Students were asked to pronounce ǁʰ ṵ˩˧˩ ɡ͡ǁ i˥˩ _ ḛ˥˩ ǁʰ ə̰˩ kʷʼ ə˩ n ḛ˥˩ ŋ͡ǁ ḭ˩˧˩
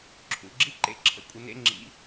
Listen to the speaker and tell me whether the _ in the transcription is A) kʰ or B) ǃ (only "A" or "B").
B